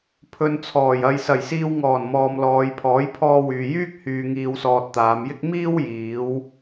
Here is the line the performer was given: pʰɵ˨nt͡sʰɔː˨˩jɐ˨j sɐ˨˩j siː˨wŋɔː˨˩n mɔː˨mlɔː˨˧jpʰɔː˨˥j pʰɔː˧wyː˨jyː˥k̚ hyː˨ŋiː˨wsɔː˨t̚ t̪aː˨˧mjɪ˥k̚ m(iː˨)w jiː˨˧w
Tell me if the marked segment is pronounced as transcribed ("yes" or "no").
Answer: no